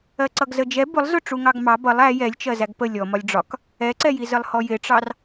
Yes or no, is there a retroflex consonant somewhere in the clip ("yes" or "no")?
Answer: yes